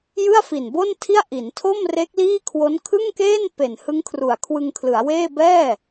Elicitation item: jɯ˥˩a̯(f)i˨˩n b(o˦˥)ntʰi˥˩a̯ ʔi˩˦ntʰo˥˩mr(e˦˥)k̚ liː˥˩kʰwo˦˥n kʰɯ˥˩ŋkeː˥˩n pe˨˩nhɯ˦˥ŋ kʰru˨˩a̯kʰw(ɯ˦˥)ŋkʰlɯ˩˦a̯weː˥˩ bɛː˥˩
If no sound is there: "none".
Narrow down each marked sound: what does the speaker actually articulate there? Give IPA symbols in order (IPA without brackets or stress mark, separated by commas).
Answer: f, o˥˩, e˦˥, ɯ˧